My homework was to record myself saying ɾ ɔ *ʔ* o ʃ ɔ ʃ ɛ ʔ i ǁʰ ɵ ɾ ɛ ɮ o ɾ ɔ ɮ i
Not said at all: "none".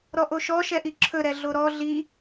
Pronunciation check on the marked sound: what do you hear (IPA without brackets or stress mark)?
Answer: ʔ